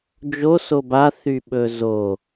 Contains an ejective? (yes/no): no